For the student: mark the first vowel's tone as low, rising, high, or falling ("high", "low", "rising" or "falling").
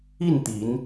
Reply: falling